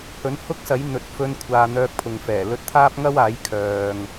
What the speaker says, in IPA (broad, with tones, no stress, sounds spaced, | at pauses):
h ɵ˨˥ n h ʊ˥ k̚ s ɐ˨˥ j n̪ ɵ˨˥ t̚ f ɵ˥ n kʷʰ aː˧ n̪ œː˧ k̚ pʰ ʊ˨ ŋ f ɛː˨˩ l ɵ˧ t̚ t̪ʰ aː˥ p̚ ŋ ɐ˥ w aː˨˥ j kʰ œː˧ ŋ